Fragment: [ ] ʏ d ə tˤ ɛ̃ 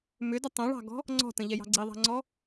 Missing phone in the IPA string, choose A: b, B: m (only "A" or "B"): B